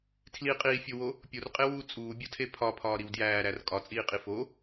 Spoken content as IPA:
tʰ l i qʼ iː fʲ o w o | pʲ o r qʼ e w uː t͡sʼ uː bʲ o tʰ e pʰ ɒ pʰ ɒː ɾ i w d j æː ɾ æ r kʼ ɒ t͡sʼ iː qʼ i f o

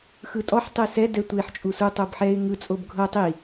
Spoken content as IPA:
x ɯ tʼ ɔ ħ tˤ e s ɛ d ɛ tʷ e ħ t͡ʃʼ u s u tˤ o b ħ ɛ ɪ̯ ŋ ɯ t͡sʼ o b ɡʱ ɤ tˤ i

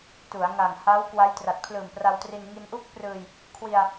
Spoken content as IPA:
t u˩˦ a̯ ŋ a˨˩ ŋ h a˦˥ w k w a˦˥ j t r a˨˩ t̚ pʰ l ɯː˨˩ m p r a˧ w t r i˧ n ŋ i˧ n ʔ u˥˩ k̚ p r ɯː˧ j | kʰ w i˧ a̯

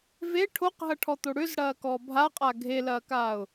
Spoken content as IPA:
v e ʈʰ o q ɦ ɐ ʈʰ ɔ t̪ o ɽ ʏ z ɽ ɐː k ɔ bʱ a qʼ a ɡʱ e l ɐː k aː ʊ̯

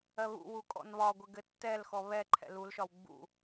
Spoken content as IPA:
ɜ β ṵ w u kʼ ɔ̰ n β ɒ ɡʷ ɘ ɡ ɘ tː ɛ l x ɔ β ɛ ǃʰ ɛ̰ l u l ʃ ɒ w ɡ͡b ṵ

